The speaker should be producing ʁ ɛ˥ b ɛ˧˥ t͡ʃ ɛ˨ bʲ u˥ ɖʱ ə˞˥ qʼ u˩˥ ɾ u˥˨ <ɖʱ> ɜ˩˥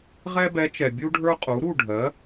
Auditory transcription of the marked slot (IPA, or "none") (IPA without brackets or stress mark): ɖʱ